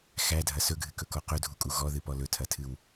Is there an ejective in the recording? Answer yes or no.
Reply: yes